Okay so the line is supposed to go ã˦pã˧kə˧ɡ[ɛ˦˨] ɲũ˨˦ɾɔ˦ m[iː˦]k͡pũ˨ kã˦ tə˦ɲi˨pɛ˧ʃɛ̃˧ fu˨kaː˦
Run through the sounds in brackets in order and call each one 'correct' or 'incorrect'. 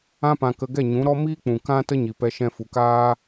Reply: correct, correct

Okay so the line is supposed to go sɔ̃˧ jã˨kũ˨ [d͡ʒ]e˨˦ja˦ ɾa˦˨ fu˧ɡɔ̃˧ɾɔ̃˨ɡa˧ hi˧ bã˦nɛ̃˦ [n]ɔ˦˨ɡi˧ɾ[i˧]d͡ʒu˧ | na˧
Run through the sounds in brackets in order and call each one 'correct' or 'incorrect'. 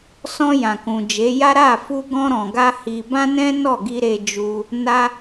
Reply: correct, correct, incorrect: e˧

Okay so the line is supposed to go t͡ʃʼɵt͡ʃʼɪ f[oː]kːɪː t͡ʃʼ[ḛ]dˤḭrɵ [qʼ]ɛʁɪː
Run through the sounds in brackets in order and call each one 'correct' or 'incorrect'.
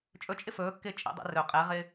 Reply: incorrect: ɵː, incorrect: ḭ, correct

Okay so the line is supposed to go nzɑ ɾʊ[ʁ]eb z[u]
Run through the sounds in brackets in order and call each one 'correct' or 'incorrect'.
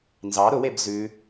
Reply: incorrect: w, incorrect: ʉ

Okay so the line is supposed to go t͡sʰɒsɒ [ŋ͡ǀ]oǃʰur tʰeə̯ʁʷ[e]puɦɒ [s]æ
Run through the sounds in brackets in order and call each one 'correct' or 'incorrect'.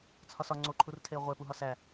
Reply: correct, correct, correct

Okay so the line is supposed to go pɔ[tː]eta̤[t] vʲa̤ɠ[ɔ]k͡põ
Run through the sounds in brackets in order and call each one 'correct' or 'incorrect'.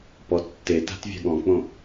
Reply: correct, correct, incorrect: ɔ̃

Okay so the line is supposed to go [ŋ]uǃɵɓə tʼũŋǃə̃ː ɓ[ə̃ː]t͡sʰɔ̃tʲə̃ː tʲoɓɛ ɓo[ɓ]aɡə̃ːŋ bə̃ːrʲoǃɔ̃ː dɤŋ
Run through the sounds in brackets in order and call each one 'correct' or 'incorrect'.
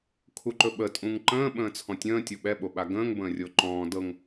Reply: incorrect: kʰ, correct, correct

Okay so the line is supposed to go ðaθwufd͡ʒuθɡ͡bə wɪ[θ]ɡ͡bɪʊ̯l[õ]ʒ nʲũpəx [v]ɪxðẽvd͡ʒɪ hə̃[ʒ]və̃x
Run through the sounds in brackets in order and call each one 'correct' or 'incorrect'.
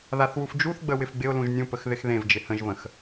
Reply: incorrect: f, incorrect: ũ, incorrect: ð, correct

